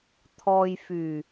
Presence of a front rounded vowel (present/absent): present